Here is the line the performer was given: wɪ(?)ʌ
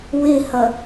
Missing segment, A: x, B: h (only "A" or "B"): B